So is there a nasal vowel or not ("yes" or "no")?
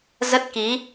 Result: no